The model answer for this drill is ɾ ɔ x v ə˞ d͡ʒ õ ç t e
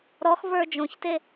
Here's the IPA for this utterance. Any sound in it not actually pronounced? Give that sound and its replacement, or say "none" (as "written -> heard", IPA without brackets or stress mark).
none